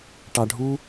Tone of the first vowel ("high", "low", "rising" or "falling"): high